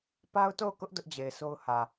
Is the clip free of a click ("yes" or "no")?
yes